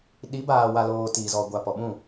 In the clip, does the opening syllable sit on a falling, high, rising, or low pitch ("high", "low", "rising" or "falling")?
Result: rising